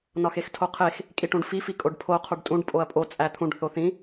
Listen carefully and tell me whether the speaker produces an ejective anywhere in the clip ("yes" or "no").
yes